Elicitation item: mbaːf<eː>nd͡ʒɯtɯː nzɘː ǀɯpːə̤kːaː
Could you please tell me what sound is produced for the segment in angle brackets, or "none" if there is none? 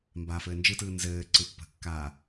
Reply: ɘː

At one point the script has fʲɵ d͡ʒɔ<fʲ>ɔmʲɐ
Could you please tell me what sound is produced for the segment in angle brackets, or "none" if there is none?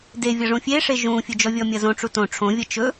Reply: vʲ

